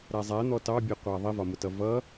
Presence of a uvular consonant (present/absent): present